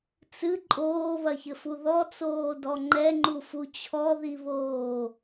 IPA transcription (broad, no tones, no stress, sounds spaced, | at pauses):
t͡s ɨ ǃʼ oː β ɐ ç ɘ f u ð ɔ t͡s oː d ɔ ŋ͡ǃ ɛ ŋ͡ǃ u f u t͡ɕʰ ɔ ð i β oː